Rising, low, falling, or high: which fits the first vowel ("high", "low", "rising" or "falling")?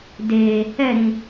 low